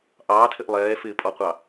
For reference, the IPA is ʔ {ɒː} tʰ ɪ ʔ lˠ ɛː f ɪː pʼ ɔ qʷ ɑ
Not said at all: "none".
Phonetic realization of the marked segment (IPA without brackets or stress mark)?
ɑː